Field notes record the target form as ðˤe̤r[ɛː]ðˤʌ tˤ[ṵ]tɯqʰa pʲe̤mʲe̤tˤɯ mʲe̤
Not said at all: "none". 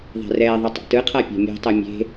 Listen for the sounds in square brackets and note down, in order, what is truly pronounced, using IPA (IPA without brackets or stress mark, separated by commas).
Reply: ɛː, ṵ